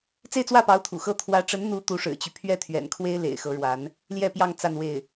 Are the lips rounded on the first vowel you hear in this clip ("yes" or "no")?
no